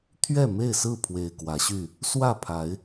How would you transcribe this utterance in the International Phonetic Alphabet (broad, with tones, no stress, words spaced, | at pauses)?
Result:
t̪ʰɥɛ˥˨me˥˨ɪ̯sɹ̩˥˨pʰwe˨˩ɪ̯ kwä˨˦ɕy˥˨ | swä˥˨pʰa˨˦ɪ̯